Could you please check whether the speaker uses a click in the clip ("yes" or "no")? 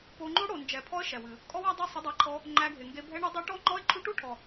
yes